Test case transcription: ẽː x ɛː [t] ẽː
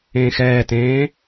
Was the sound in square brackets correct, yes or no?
yes